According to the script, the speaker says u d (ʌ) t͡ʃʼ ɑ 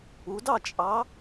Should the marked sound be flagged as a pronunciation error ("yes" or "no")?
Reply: yes